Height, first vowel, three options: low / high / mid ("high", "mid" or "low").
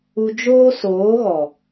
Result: high